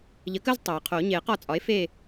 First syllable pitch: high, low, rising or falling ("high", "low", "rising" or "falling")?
rising